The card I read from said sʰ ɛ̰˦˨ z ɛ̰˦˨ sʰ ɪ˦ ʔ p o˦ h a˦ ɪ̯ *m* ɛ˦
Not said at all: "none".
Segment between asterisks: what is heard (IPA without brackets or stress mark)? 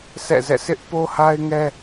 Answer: ŋ